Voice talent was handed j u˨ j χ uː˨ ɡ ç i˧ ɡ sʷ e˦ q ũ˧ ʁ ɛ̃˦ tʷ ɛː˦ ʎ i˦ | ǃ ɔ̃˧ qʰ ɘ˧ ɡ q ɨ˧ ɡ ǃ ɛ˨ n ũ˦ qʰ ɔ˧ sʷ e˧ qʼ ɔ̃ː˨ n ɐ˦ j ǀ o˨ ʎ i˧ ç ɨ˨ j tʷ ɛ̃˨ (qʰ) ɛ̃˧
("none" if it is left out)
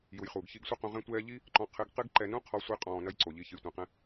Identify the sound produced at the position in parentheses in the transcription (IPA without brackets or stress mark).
q